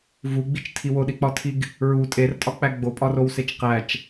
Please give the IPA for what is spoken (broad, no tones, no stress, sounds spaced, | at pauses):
v u ɡ͡b i t͡ʃ tʰ i w o ɗ i k͡p ɒ tʰ i ɡ | ɹ u tʼ e r tʼ ɒ k͡p æ ɡ͡b o pʼ ɒ r o w s e t͡ʃ q æ t͡ʃ